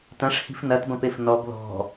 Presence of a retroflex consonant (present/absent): present